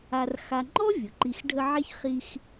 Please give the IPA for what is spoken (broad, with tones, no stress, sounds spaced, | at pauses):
a˨ r x a˨ ŋ͡ǃ ɔ˥ vʲ ʊ˩ ǃ i˨ x ɖʱ ə˦ ʕ e˥ ç χ i˦ x